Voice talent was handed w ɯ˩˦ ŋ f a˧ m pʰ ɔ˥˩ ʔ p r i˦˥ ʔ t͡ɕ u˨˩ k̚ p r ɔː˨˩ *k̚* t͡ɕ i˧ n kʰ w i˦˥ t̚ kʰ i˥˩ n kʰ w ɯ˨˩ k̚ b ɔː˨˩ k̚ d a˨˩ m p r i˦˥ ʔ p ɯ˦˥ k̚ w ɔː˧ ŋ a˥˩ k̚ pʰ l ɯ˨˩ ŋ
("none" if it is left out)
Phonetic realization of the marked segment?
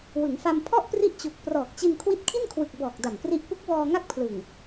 k̚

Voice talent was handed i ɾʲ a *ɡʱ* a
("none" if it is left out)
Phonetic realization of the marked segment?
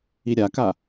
k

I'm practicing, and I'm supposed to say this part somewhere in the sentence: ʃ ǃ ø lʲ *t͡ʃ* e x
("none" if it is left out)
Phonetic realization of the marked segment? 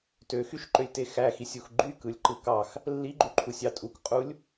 t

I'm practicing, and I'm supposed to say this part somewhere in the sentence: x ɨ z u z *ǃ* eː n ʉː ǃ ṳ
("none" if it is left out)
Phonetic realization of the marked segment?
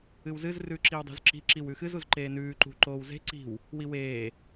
ǃ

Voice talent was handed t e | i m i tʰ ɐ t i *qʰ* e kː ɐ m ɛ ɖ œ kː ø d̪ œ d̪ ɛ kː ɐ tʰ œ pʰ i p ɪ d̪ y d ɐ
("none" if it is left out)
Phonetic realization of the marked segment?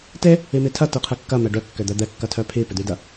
qʰ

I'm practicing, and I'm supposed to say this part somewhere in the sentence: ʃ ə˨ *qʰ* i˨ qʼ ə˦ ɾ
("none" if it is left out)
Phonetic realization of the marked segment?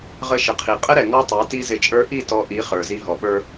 qʰ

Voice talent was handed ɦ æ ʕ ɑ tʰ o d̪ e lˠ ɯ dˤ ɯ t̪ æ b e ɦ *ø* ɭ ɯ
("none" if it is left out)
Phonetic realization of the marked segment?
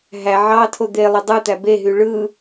y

